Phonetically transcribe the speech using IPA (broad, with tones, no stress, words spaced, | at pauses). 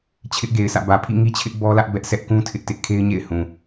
t͡ɕʰɪ˦ʔɡe˨ɪ̯sä̰˦˨ bä˨pʰḭ˦˨ŋi˦t͡ɕʰɪ˦ʔ bɔ˦lä˦ʔ bɛ˦ʔ sɛ˦ʔkũ˦ tʰɪ˦ʔtɪ˦ʔ kʰe˦ɪ̯ɲḛ˦˨ɪ̯hũ˨